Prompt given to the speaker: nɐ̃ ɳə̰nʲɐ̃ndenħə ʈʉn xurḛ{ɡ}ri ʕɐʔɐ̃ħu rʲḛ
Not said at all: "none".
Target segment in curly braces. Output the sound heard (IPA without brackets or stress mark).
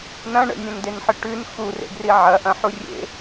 ɡ